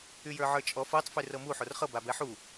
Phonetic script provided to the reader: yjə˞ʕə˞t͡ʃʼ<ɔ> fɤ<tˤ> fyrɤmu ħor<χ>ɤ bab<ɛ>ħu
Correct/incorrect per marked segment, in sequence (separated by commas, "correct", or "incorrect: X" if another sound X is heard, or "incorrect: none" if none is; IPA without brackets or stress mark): correct, correct, correct, correct